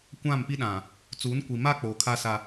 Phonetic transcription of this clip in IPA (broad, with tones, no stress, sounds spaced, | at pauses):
kʷ ã˦˨ m p i˦ ɗ ã˨ | t͡s uː˨˦ n kʷ i˨ m a˦ k͡p oː˨ kʰ a˦ s a˦